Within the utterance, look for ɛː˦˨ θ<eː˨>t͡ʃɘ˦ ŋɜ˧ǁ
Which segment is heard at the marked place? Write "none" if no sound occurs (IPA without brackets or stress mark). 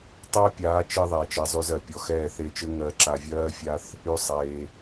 eː˧